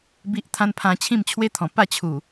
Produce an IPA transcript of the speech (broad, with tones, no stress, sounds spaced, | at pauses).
b i˦ ʔ t̪ʰ ã˦ n pʰ ã˧ t͡ɕʰ ĩ˥˧ m t͡ɕʰ w e˦ t̪ʰ ɔ̃˨˩ p a˥˧ t͡ɕʰ u˨˩